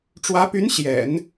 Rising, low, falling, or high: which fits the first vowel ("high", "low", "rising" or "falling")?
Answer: rising